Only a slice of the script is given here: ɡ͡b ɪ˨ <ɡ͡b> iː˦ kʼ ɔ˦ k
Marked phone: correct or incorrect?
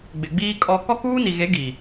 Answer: correct